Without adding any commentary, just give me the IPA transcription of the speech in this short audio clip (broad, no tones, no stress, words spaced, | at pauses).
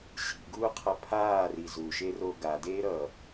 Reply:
ɕḭɡuːqʰʌ pʰaːri zuʃero ɡadeːɾʌː